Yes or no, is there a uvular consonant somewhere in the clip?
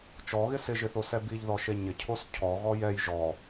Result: no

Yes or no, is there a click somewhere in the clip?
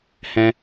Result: no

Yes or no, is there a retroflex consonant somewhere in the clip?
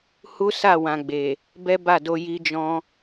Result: no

